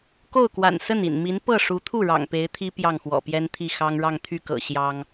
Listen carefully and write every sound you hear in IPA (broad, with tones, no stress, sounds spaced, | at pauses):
k o˥˩ ʊ̯ k w a̰˨˩ n s ə˥˩ n ḭ˨˩ n m i˧˥ n p ɤ˥˩ ʂ u˧˥ t̪ʰ u˥˩ ɻ ɑ̰˨˩ ŋ p e˧˥ ɪ̯ t̪ʰ i˥ p j ɑ˥˩ ŋ x w ɔ̰˨˩ p j ɛ˥ n t̪ʰ i˥˩ x ɑ˥ ŋ ɻ ɑ˥˧ ŋ t̪ʰ y˥˩ k ɤ̰˨˩ ɕ j ɑ˥ ŋ